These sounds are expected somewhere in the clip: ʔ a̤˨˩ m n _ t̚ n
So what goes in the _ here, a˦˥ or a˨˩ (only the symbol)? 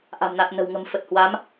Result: a˨˩